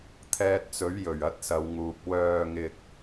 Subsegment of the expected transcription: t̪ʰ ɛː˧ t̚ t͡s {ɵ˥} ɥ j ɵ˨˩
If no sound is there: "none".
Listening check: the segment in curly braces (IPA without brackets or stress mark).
ɵ˨˥